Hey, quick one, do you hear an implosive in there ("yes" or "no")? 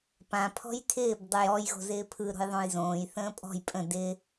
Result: no